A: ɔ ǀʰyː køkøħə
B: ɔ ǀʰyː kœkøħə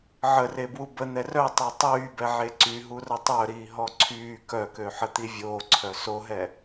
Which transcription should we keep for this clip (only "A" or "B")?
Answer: B